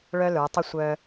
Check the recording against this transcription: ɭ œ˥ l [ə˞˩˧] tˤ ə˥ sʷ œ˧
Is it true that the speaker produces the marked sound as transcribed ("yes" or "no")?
yes